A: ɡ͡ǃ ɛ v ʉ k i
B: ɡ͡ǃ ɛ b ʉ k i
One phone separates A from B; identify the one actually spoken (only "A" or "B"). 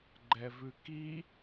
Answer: A